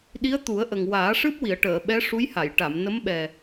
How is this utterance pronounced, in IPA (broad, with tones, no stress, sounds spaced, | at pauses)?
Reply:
ɗ i˧˥ ə̯ t̪ u˨˩˦ ə̯ ʔ ə˨˩ ŋ w aː˨˩˦ ʂ ɨ˦˥ p̚ w i˨˩˨ ə̯ ʈ əː˨˩˨ ɓ ɛ˧˥ ʂ u˧˥ j h a˨˩˨ j ʈ a˨˩˨ m n ə˧˥ m ɓ ɛ˨˩